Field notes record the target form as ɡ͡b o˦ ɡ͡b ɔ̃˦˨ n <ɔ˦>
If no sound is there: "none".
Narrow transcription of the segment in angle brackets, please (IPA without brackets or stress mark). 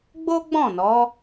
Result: ɔ˨˦